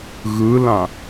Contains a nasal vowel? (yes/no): yes